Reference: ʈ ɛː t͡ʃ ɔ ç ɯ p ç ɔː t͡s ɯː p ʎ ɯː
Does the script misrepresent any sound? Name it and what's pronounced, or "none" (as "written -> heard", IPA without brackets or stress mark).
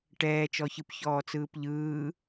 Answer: none